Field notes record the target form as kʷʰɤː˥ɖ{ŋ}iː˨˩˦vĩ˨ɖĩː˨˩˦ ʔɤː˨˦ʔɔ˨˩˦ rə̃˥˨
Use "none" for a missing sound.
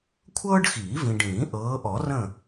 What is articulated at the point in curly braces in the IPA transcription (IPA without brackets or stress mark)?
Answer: x